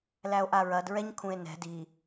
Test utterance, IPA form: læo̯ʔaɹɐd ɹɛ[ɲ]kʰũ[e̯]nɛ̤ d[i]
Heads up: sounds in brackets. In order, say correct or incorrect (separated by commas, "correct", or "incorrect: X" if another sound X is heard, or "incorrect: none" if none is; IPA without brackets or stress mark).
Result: correct, correct, correct